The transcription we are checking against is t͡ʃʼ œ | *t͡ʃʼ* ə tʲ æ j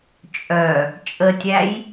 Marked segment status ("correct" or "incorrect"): correct